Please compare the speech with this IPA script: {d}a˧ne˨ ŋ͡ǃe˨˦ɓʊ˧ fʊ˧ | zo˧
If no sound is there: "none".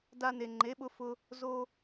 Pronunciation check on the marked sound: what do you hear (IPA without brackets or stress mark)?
d